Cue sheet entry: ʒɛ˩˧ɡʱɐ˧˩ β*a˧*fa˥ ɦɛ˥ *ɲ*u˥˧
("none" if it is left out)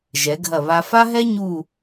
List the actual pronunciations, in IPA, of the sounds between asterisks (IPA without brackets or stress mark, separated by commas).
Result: a˧, ɲ